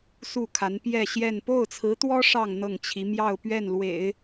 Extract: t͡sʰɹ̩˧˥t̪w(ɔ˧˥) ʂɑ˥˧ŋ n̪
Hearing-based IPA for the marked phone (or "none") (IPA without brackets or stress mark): ɔ˥